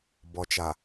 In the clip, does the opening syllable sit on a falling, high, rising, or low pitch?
low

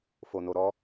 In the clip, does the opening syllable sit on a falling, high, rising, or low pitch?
low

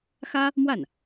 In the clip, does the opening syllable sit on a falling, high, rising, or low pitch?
high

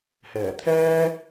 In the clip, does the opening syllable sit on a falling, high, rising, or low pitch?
low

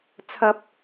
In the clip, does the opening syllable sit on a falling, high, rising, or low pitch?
high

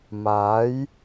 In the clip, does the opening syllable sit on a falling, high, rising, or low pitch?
rising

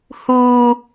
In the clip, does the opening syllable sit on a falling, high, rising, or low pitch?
high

